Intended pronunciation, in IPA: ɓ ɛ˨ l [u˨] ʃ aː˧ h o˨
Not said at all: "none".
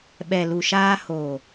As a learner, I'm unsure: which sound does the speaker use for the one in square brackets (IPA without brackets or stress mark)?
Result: u˨